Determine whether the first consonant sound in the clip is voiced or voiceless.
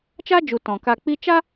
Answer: voiceless